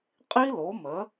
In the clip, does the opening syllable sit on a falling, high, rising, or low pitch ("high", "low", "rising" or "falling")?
high